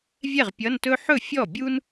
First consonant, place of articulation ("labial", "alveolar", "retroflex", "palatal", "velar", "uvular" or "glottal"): labial